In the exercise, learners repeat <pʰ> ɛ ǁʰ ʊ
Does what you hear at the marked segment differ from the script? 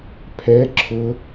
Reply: no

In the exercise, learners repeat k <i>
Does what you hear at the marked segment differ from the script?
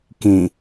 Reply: yes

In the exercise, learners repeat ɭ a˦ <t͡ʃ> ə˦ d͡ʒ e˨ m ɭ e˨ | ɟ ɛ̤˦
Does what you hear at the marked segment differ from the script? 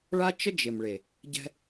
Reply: no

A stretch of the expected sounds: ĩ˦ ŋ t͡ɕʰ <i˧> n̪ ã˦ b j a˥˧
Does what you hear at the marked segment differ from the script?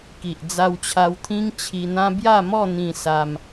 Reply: no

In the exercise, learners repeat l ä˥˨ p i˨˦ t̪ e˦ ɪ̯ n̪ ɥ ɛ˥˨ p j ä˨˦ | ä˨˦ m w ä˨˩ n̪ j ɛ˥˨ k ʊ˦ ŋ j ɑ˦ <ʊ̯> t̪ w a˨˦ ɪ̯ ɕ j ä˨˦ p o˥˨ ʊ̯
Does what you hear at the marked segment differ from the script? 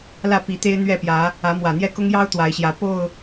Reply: no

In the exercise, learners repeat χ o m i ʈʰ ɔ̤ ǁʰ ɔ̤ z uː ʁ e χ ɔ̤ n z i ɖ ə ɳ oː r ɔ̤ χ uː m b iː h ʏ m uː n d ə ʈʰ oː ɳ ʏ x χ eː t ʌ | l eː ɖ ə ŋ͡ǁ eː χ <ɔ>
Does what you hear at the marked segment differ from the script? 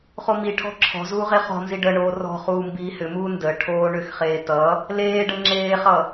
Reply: yes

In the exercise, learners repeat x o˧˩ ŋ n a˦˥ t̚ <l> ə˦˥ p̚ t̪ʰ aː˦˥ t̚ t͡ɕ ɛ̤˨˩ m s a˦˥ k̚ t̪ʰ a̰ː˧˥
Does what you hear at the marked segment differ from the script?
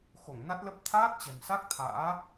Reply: no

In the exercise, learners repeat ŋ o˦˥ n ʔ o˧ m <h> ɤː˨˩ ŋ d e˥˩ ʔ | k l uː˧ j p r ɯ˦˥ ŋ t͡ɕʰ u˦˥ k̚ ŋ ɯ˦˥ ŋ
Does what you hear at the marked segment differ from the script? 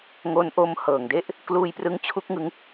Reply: no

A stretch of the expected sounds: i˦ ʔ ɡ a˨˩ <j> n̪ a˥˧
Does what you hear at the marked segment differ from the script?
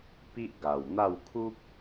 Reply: yes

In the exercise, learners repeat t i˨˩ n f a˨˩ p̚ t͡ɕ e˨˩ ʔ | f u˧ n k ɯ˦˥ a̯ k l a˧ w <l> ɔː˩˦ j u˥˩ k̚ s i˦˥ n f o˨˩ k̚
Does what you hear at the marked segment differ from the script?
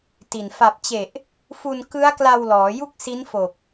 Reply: no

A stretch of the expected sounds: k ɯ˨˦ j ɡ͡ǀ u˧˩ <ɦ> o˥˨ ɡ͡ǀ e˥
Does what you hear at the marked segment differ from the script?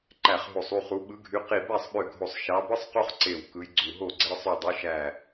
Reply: no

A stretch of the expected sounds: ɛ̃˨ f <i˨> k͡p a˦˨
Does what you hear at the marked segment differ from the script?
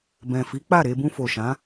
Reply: yes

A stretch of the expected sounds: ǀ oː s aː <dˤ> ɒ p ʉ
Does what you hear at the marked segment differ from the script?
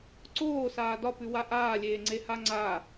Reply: yes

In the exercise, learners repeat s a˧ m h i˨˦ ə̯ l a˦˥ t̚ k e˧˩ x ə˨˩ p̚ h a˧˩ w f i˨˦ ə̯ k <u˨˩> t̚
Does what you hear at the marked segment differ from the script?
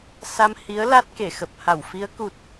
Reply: no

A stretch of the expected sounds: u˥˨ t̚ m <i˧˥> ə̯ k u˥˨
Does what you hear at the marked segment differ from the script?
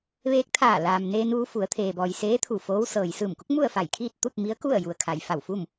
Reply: no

